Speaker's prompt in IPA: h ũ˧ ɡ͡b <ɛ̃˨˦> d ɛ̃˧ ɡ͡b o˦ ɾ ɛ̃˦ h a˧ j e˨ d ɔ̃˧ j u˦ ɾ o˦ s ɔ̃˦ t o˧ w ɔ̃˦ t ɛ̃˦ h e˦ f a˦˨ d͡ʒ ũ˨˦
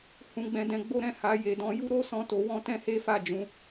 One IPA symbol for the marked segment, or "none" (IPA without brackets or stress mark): ɛ̃˧